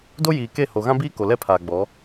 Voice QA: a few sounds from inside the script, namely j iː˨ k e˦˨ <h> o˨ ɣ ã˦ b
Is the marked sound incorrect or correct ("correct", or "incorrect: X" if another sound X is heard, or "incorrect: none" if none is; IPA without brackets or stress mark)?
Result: correct